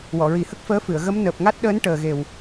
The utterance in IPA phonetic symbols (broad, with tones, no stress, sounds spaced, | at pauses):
w ɔ˨˩˨ ɹ i˨˩˦ h ə˦˥ k̚ f əː˧˥ f ɨ˨˩˨ ə̯ ɣ ə˧˥ m n əː˨˩ p̚ ŋ a˦˥ t̚ ɗ əː˧˥ n ʈ əː˨˩ ɣ e˨˩ w